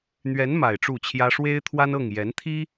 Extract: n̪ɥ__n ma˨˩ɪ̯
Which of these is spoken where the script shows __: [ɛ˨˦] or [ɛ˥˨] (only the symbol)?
ɛ˨˦